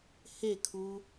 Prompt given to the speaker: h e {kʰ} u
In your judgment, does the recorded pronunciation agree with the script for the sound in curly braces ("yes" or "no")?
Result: yes